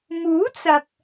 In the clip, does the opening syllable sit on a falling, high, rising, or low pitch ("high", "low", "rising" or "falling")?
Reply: rising